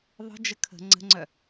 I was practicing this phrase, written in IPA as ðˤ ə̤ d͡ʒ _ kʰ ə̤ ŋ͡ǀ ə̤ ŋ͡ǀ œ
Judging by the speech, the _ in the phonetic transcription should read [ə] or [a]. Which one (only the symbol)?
ə